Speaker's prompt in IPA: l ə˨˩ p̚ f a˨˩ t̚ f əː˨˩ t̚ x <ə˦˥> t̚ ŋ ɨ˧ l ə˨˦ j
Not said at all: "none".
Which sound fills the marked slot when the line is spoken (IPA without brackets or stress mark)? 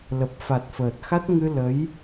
a˦˥